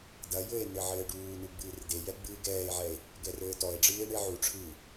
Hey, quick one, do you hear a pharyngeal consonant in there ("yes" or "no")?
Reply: yes